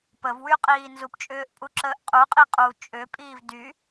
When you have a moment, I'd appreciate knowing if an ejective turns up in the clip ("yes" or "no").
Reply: yes